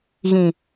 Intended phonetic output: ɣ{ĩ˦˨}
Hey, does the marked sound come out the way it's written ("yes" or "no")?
no